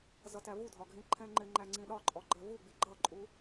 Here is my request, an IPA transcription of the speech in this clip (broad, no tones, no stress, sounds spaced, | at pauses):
z ʌ t æ v u dʱ ɒ ɡʱ ĩ ǃʰ ɛ̃ ŋ͡ǃ ɪ ŋ͡ǃ æ ŋ͡ǀ ĩ ɗ ɒ ǃʼ ɔ ɡ͡ǃ ɜ v u ɡ͡b i ɡ͡ǃ ʌ ǃʼ u